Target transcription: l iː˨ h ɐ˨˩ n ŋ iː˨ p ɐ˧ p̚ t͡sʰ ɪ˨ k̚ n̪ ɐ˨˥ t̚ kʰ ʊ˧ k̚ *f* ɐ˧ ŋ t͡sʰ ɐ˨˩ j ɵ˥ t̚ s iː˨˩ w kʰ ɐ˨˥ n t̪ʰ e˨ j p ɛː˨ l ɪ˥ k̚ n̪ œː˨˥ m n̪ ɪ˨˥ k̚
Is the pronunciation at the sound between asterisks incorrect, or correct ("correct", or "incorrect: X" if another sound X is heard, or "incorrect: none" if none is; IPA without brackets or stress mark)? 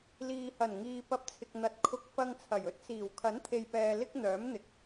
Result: correct